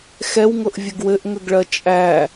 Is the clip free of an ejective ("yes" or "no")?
no